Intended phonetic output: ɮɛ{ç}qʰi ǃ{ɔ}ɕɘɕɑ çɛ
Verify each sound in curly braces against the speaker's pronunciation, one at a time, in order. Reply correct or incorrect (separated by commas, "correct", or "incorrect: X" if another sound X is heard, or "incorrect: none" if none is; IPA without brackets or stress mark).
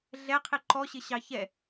incorrect: none, correct